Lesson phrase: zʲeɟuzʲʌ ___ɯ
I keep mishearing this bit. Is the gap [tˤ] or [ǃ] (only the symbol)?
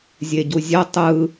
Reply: tˤ